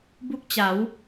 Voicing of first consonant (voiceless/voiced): voiced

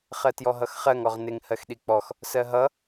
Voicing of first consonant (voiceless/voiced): voiceless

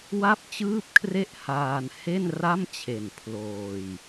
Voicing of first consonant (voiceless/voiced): voiced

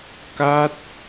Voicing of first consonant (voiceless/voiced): voiceless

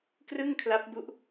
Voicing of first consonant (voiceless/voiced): voiceless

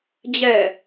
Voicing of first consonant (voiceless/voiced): voiced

